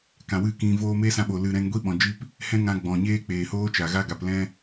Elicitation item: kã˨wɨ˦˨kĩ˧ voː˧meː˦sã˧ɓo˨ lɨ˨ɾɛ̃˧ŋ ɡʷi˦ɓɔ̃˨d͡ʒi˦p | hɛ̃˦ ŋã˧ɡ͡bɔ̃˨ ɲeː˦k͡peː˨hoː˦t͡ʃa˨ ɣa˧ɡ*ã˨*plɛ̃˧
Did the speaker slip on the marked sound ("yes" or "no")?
yes